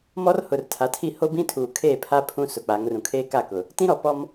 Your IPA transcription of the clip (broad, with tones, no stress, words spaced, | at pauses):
mɔ˦rhʊ˨rtʰa˨tʰi˦˨ ho˦bĩ˦tʰuː˨ kʰeː˦˨pʰa˦ pʰũ˦sʊ˨k͡pa˨˦ŋ rũ˨kʰeː˦ka˦˨kʊ˨ | tĩ˦ɾɔ˨pɔ˦m